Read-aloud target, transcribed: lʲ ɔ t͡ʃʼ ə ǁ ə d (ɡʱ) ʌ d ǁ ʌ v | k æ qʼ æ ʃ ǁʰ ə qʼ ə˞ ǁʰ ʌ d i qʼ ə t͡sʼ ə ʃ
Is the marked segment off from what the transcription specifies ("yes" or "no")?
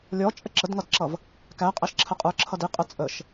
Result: yes